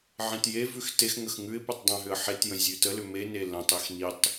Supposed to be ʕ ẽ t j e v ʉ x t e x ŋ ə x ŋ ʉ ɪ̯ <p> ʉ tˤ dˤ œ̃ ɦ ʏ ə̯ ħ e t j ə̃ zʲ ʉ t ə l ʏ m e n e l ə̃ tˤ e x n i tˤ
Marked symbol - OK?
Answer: yes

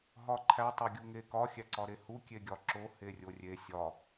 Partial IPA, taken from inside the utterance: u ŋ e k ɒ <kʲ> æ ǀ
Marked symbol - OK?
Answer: no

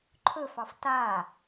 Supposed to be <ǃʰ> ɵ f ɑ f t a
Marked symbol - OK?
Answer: yes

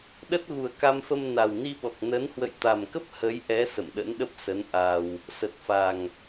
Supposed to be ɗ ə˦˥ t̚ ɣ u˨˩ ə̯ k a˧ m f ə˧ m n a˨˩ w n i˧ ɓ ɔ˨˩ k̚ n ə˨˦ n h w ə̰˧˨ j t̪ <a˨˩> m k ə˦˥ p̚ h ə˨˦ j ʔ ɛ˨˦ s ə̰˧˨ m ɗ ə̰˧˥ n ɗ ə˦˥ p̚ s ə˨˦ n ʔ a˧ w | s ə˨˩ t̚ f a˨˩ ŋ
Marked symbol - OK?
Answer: yes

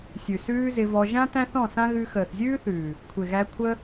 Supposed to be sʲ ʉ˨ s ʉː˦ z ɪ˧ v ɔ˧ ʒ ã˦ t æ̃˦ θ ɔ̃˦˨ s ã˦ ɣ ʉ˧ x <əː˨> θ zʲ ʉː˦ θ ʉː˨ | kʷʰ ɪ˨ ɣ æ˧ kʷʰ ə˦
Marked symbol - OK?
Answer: yes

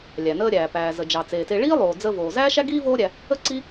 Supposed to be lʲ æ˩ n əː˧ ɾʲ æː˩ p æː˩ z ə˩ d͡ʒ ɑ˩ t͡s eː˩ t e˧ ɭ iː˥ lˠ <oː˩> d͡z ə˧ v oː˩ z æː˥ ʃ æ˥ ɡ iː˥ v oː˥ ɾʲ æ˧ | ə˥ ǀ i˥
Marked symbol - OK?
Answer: yes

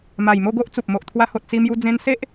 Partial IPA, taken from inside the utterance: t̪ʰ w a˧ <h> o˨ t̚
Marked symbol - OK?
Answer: yes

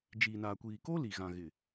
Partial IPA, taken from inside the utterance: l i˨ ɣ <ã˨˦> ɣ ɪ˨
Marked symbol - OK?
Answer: no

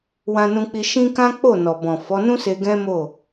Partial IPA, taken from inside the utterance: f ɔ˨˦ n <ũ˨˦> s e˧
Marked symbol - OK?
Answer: no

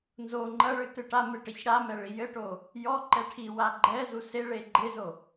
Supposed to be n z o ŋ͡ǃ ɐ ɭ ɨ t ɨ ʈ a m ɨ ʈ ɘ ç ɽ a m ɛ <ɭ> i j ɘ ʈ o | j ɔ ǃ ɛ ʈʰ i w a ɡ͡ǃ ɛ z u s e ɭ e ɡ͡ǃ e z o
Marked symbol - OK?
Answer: yes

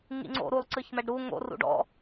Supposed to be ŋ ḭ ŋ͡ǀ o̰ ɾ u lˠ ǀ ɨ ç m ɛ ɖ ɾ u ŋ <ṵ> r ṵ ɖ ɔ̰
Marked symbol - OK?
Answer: no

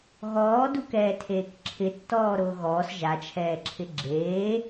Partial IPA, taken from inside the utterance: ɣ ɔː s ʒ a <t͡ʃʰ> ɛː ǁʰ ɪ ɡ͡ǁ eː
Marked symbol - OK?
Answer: yes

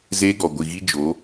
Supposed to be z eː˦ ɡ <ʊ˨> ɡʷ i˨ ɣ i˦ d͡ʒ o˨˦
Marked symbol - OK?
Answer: no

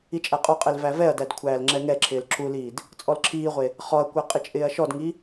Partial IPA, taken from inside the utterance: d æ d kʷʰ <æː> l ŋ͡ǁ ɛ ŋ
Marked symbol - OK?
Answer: yes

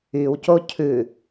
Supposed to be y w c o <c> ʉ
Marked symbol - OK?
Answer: no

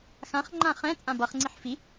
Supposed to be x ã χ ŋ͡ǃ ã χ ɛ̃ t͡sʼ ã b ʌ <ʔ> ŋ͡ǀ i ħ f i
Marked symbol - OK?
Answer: no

